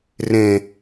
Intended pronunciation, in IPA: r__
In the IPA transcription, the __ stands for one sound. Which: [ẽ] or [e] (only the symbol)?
ẽ